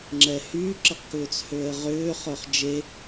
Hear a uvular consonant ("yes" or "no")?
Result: yes